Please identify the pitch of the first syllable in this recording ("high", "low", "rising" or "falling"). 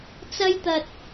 high